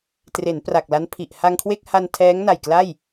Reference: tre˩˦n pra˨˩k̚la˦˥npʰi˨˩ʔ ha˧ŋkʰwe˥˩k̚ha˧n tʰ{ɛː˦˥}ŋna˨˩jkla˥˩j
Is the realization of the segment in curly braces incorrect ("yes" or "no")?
no